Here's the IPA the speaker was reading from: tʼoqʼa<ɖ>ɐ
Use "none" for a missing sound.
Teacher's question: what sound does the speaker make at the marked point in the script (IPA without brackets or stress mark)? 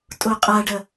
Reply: ɖ